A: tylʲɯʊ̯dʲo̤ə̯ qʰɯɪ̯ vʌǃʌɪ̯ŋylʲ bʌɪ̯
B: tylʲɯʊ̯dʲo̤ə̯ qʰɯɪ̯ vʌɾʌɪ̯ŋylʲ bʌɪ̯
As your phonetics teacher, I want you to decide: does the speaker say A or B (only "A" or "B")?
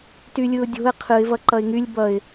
A